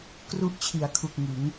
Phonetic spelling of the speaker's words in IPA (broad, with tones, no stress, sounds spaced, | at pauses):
k r u˦˥ ʔ t͡ɕʰ i˩˦ a̯ kʰ u˨˩ k̚ ŋ ɯ˩˦ ŋ